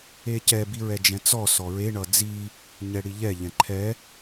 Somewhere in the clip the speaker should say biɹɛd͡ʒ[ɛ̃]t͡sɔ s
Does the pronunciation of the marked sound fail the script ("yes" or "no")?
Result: no